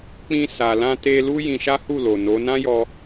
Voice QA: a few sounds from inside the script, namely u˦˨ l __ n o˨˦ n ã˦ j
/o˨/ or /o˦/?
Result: o˨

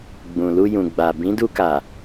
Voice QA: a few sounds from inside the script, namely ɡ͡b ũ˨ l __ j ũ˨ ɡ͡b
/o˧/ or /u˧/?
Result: u˧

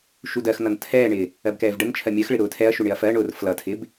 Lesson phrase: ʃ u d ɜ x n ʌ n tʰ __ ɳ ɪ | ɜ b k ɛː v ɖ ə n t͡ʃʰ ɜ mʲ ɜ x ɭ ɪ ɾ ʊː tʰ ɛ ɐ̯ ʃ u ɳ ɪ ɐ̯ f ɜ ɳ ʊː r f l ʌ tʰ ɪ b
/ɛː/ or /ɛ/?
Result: ɛː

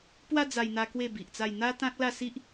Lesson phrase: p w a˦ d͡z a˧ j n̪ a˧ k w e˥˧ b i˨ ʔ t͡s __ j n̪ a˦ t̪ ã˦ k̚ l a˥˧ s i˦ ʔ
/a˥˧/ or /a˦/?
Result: a˥˧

